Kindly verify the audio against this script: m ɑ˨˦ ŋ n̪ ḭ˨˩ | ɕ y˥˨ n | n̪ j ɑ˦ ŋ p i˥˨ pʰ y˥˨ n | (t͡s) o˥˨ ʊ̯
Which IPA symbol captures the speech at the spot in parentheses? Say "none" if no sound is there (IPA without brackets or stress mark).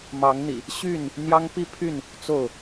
t͡s